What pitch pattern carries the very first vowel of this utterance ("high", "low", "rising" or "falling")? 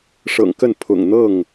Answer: low